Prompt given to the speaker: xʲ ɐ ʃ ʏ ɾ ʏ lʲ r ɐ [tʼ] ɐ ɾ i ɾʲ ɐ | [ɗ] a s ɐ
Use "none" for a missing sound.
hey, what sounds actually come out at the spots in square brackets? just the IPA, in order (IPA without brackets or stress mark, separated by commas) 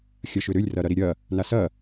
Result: ɾ, n